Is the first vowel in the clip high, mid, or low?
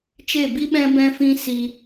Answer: mid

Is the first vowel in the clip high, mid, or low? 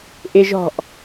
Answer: high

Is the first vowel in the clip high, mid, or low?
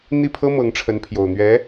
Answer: high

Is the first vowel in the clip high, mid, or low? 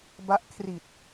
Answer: low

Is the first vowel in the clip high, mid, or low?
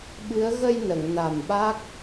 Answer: high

